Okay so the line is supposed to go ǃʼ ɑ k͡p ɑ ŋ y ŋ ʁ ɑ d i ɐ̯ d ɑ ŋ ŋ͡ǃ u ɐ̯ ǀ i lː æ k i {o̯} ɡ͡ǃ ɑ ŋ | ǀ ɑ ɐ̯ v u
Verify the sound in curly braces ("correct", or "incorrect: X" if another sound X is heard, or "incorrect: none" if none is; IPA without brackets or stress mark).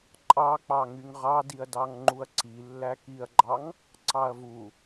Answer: incorrect: ɐ̯